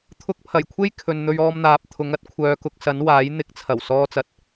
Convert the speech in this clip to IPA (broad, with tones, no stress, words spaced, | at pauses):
t̪ʰʊ˧k̚pʰɐ˨˩jkʷʰe˥j kʰɵ˨n n̪ɵ˧ɥɔː˧m n̪aː˨p̚ t̪ʰʊ˨˧ŋɐ˥t̚ kʷʰœː˨˧kʊ˨˥k̚sɐ˨˥nwaː˨˥j n̪ɪ˨˥k̚t͡sʰɐ˨˩w sɔː˧t͡sɐ˨t̚